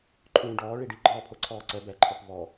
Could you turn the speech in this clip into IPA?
ǃʰ ũː ɖ ɔː ɭ i ɖ i ɡ͡ǃ ɔː pʰ o ǀʰ ɔː ǀ ɛ b ɛ ǃʰ ɔ p v ɔ

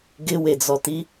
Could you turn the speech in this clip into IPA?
ɡ ɪ w e d͡z ɔ t i

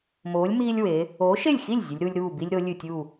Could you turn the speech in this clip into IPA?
m oː˨˥ lʲ m iː˦ lʲ w e˨˥ | oː˨˥ ʃ e˥˩ lʲ x i˥˩ lʲ zʲ ɨ˨˥ lʲ ɾ u˦ lʲ ɾ uː˥˩ b i˦ lʲ ɾ o˨˥ lʲ ɨ˥˩ tʲ u˥˩

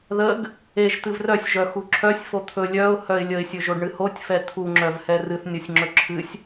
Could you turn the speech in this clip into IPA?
ð ə ɡ | e ʒ t̪ ɨ v r œ sʲ ʒ œ x u ǁʰ œ sʲ f o t̪ʰ ɵ lʲ œ ʊ̯ h œ ɪ̯ lʲ ə ɪ̯ sʲ ɵ ʒ o ɖ ɳ ɨ h o tʲ f ɛ t̪ʰ u ŋ͡ǁ œ v h ɛ r ɨ θ nʲ ɔ sʲ ŋ͡ǁ ɵ ǁʰ ɨ sʲ

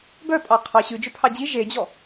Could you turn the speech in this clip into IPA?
b œ pʼ ɑ qʰ ɑ ɕ ʉ d͡ʒ ɵ pʰ ɑ d͡ʑ i ʒ e d͡ʑ ɔ

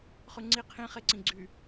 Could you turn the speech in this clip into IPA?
χ ʉ ŋ͡ǀ i qʰ ĩ χ e ǀ ĩ ɡ͡ǀ y

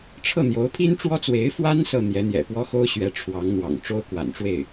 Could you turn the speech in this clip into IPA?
ʈ͡ʂʰ ɤ˥˩ n̪ j o˧˥ ʊ̯ pʰ i˥ n ʈ͡ʂ w ɔ˥ t͡s w e˧˥ ɪ̯ f w a˥ n s ɤ˥˩ n̪ j ɛ˧˥ n̪ j ɛ̰˨˩ p w ɔ˥ x o˥ ʊ̯ ɕ ɥ ɛ˧˥ ʈ͡ʂʰ w ɑ˧˥ ŋ n̪ w ɑ̰˨˩ ŋ ʈ͡ʂ o˥ ʊ̯ k w a̰˨˩ n ʈ͡ʂ w e˥˩ ɪ̯

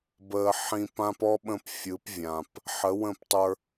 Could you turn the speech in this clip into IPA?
b əː˧ ħ ĩ˧ p ã˦ p ɔ˦ ɓ ə̃˧ p fʲ ɯ˨˦ p vʲ ã˨ p | ħ ə˨˦ w ə̃˦˨ p tˤ ə˞˧

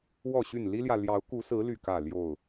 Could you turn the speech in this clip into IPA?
w ɔ˥˨ ɕ y˥˨ n l i˦ l j ä˨ l j ɑ˨˦ ʊ̯ k u˨˦ s ɹ̩˨˦ l y˥˨ k ä˥˨ l j o˥˨ ʊ̯

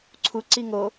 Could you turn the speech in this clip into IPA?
ǀʰ u ǀ i ŋ o

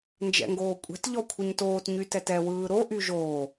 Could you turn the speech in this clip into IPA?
n d͡ʒ ɛ̰ ŋ ɡ oː kʷʼ ɛ̤ t ʎ ɔ kʷʰ ɯ ɲ t oː t ɲ y t ɛ t ɛ w ɯː ɾ o ʔ y ʒ oː

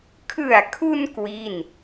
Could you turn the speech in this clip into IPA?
kʰ ɯ˨˩ a̯ kʰ u˧ n k w i˥˩ n

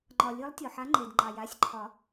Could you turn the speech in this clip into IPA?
ŋ͡ǃ ɒ˩ lʲ ɨ˨˦ lˠ tʲ ɔ˩ ħ a˨˦ ŋ͡ǃ e˩ d ŋ͡ǃ ɑ˩ j a˩˧˩ sʲ ǃʰ ɒ˨˩˦

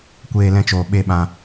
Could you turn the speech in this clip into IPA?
kʷ eː˧ l ɛ̃˧ t͡ʃ oː˨ ɓ e˦ ɓ ã˧

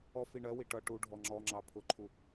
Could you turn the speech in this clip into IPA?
ɔ f i ɳ ɜ w i ʈ ʌ ʈ u ɖʱ ɔ ŋ͡ǁ ɔ ŋ͡ǁ ɑ pʰ ʊ ǃʰ u

